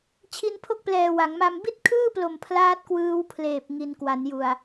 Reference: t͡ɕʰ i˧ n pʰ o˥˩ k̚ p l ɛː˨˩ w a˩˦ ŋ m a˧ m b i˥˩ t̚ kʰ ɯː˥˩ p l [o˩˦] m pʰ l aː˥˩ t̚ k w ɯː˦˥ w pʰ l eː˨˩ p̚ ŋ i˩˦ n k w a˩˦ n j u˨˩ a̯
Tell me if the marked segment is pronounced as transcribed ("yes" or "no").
no